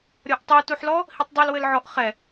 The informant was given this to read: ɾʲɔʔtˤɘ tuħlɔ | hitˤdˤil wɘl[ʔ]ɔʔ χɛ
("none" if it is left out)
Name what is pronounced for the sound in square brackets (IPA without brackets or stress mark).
ʕ